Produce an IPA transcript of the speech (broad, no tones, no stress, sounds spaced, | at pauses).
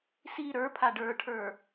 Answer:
s i ɾ ə˞ pʰ a ɖ ə˞ ʈʰ ə˞